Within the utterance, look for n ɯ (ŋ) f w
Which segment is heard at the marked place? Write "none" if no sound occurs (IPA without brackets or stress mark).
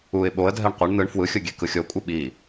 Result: ɳ